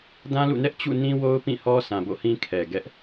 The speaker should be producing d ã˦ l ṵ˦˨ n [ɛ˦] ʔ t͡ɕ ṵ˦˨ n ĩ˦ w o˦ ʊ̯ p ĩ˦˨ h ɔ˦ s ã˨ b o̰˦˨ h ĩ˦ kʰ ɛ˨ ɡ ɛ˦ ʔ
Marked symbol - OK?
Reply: yes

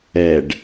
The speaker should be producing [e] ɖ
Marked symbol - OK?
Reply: no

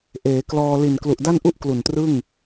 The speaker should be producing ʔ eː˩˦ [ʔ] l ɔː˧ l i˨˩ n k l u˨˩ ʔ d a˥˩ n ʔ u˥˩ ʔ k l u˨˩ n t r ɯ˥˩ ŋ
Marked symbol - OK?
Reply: no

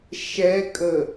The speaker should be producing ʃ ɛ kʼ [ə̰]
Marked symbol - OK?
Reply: no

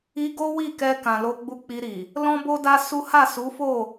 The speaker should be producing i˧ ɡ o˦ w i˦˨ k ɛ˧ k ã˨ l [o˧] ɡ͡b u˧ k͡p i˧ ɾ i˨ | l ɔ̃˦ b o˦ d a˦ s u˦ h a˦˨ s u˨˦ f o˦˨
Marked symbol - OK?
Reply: yes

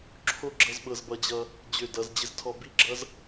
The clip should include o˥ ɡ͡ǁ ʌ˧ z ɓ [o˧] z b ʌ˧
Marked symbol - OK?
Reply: no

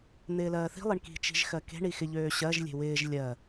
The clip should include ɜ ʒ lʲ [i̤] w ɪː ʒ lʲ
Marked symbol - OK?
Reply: no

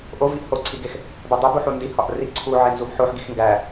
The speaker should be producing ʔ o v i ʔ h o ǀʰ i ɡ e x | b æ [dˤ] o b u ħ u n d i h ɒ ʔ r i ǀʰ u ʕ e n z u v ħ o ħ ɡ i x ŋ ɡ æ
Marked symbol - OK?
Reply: yes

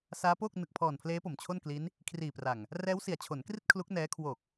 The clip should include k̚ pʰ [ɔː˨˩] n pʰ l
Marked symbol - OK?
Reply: yes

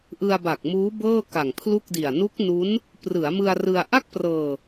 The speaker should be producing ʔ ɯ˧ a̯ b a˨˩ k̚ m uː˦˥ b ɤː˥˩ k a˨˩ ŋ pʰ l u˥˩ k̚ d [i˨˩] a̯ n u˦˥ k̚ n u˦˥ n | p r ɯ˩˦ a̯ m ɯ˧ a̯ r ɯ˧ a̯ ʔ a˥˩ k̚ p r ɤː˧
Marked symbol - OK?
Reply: yes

